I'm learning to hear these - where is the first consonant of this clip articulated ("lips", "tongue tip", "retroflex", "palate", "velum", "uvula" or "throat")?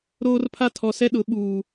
tongue tip